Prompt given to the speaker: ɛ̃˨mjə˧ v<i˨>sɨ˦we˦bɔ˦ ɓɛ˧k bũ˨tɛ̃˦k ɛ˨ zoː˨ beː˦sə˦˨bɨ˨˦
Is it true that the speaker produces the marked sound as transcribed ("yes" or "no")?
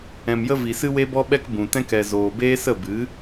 yes